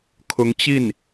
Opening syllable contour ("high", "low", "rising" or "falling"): rising